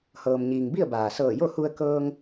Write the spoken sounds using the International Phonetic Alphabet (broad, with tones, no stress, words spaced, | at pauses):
hɤː˩mɲiː˩ŋbi˥˨ə̯ baː˩ sɤː˧˩jo˥˨hu˧ə̯ kɤː˧ŋ